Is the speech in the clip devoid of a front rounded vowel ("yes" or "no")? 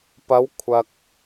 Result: yes